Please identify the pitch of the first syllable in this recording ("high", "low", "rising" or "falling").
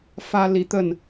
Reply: high